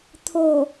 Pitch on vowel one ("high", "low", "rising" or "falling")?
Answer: low